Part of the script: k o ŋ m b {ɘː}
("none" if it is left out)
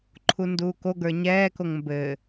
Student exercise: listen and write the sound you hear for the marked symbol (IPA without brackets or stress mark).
ɘː